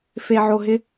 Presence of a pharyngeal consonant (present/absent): present